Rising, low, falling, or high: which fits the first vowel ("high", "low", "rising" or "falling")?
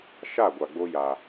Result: falling